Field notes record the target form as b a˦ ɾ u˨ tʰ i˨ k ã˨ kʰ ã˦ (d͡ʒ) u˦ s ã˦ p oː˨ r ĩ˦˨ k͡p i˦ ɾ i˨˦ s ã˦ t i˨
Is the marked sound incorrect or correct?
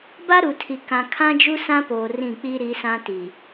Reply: correct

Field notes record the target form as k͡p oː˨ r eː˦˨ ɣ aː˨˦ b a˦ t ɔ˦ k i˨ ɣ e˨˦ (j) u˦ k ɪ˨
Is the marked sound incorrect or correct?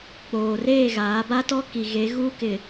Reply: incorrect: ɣ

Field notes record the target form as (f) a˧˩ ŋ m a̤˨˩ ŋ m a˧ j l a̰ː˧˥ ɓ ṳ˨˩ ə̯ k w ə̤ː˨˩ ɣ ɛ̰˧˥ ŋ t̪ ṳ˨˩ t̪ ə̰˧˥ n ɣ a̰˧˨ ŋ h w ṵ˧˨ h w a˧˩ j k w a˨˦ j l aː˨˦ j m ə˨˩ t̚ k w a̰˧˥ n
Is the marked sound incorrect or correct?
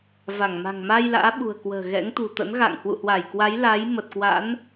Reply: incorrect: v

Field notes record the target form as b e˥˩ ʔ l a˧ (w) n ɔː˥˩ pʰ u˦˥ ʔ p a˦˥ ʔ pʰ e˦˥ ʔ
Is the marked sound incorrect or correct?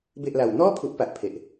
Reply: correct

